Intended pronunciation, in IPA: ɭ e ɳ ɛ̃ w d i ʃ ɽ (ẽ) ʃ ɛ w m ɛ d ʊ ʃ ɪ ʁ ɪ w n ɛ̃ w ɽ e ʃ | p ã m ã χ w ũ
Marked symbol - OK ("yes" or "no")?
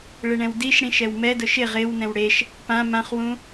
no